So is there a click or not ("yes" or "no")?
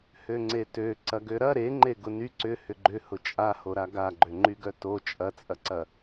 yes